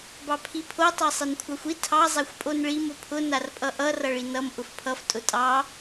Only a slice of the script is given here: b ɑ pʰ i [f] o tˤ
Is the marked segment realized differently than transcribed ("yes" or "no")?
yes